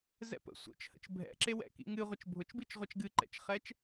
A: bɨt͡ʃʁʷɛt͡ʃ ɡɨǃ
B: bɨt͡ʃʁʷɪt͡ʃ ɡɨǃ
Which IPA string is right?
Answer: A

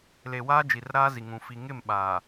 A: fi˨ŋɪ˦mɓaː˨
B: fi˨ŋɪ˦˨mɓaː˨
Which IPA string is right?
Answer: B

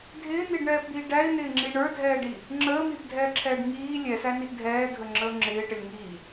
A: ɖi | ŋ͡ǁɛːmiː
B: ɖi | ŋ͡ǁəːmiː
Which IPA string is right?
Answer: B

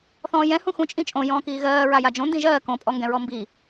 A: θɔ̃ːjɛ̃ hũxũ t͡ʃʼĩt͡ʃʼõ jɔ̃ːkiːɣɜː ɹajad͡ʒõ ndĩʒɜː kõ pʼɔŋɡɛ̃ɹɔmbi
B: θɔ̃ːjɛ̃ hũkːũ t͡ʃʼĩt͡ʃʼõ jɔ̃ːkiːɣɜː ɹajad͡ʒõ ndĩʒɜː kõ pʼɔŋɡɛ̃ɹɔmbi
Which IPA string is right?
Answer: A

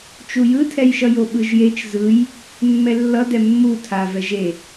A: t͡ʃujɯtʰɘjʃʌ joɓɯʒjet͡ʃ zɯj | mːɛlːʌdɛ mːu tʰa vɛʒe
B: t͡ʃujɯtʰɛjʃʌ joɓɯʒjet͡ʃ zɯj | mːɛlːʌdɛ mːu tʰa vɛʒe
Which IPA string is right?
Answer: B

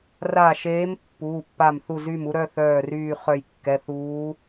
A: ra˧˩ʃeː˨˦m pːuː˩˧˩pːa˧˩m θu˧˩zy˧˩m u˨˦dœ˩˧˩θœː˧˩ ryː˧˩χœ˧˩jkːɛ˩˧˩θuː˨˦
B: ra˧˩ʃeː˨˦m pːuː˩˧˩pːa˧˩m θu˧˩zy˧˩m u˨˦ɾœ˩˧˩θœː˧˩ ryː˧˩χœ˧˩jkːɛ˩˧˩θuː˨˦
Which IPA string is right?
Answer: B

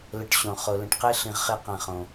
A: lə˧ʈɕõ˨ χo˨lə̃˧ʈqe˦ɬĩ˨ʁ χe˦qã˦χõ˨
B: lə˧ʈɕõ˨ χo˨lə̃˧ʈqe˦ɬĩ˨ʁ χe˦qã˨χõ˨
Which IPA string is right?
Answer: B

